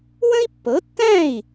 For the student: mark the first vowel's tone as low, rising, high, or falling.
high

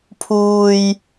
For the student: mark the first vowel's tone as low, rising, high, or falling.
high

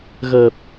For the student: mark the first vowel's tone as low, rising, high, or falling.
low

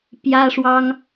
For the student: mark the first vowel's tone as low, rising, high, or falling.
high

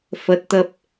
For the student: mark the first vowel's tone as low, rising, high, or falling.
rising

